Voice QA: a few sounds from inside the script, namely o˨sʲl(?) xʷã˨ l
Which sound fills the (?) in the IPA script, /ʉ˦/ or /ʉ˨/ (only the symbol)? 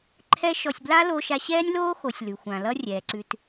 ʉ˨